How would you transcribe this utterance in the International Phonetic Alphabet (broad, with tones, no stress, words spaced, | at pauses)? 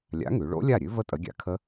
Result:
lʲa̰˨˥ŋʉ˩˧ɭo̰˦˥ lʲa˥˩ɾʲʉ˦˥və˦˥ tʼə˨˥ɡʲa̰˨˥kʰə˦˥